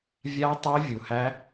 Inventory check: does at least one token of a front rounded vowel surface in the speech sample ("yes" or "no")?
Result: yes